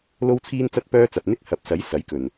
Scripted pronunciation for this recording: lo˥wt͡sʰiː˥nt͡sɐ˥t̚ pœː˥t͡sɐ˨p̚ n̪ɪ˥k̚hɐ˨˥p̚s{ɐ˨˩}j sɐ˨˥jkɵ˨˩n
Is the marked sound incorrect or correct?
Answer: incorrect: ɐ˨˥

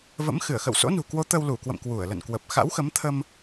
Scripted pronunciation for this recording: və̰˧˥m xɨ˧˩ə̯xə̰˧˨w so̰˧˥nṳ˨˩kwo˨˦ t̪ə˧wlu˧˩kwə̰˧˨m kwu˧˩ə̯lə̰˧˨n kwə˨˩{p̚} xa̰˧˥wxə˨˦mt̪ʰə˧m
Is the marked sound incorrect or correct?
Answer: correct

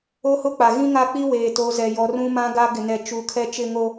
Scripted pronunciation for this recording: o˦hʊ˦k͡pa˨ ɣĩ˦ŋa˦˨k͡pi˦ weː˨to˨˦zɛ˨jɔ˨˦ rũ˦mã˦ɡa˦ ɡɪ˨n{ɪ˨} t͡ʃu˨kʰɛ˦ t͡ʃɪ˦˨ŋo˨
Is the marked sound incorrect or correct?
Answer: incorrect: ɛ˨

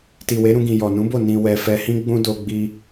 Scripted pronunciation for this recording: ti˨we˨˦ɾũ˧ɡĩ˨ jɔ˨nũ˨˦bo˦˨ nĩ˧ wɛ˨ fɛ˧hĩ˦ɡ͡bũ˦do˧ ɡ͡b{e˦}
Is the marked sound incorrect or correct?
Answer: incorrect: i˦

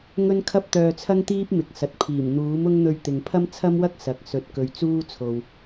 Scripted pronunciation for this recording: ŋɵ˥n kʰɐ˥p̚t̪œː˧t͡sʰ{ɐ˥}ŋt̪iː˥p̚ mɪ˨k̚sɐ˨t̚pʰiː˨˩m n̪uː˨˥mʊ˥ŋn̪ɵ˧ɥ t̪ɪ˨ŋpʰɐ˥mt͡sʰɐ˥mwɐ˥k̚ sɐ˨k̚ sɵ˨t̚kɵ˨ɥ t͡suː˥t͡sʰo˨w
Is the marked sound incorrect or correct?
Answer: correct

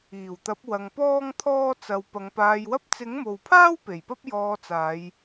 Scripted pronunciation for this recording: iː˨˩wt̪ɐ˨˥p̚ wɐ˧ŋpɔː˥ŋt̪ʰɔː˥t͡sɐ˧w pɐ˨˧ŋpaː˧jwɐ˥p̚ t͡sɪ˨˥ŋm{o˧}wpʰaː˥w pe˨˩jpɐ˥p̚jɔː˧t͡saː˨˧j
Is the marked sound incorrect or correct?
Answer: incorrect: o˨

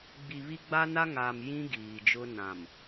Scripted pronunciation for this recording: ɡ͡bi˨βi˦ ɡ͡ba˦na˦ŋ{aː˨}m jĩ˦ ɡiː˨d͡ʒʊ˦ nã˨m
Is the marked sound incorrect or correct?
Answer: correct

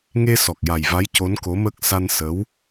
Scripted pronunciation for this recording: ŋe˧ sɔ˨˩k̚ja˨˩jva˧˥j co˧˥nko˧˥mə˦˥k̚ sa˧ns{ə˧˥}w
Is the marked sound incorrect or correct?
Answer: correct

